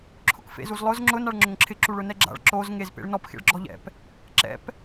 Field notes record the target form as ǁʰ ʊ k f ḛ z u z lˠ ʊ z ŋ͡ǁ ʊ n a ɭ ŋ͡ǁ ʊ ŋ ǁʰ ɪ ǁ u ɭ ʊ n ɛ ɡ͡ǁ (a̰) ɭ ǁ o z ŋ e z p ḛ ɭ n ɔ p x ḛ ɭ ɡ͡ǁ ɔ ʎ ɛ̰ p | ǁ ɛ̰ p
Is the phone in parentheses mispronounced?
no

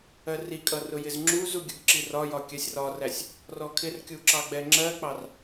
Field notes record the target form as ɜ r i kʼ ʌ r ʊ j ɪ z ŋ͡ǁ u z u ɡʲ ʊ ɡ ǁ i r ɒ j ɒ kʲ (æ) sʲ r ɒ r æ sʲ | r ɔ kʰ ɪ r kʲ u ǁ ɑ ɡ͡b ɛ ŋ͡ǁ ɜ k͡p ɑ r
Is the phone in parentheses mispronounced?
yes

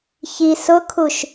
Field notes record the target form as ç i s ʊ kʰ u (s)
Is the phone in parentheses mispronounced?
yes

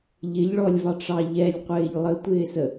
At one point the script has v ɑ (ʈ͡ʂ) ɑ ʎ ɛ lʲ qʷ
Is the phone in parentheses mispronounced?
no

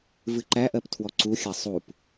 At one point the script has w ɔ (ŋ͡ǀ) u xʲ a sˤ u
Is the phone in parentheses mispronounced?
yes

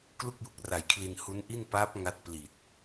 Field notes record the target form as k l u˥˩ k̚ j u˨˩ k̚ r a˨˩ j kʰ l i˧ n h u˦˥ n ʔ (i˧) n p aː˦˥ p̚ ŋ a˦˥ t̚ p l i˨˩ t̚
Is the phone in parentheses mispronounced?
yes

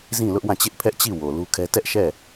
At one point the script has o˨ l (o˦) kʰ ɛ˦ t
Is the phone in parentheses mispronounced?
yes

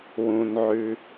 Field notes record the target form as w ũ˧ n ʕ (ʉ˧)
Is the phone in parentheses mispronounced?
no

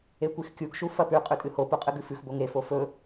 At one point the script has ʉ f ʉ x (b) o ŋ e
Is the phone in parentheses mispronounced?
no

